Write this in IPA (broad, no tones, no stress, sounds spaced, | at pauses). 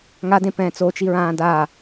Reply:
ŋ a d ẽ p ɛ̃ː t͡s o t͡ʃ i ɹ ãː d a